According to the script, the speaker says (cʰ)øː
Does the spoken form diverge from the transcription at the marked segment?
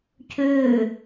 no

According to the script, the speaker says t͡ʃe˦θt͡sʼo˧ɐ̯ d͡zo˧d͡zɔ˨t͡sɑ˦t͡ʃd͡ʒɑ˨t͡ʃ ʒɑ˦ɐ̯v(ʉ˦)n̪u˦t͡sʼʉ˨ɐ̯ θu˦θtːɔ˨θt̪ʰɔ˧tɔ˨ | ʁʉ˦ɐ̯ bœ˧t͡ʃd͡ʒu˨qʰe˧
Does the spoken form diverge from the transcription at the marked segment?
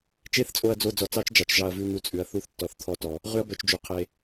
no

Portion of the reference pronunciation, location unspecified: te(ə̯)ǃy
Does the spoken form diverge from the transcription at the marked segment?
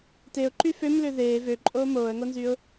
yes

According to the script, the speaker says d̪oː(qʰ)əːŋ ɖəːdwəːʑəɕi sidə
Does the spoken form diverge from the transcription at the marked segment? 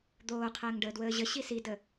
no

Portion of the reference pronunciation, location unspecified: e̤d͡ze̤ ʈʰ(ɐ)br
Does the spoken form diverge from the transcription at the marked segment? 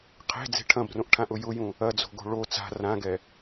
yes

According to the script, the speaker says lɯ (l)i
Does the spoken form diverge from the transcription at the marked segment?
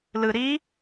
yes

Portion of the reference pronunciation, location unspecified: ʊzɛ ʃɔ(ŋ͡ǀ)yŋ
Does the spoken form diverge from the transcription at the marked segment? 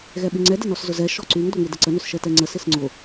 yes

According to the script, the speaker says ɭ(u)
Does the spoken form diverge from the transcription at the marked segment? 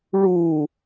no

